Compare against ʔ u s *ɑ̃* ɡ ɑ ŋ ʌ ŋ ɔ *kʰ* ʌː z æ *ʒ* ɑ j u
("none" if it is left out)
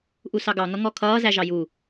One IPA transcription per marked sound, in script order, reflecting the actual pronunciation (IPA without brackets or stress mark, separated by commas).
ɑ, kʰ, ʒ